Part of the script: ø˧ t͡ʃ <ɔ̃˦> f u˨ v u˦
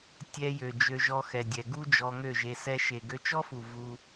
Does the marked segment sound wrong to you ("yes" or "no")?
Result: yes